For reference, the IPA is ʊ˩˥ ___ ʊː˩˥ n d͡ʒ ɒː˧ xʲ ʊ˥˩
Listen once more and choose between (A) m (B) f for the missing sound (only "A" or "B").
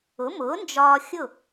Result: A